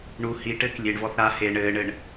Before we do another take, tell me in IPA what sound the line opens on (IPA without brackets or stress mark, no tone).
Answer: ɳ